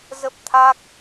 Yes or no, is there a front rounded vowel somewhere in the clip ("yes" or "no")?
no